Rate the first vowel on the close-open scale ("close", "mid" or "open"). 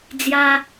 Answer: open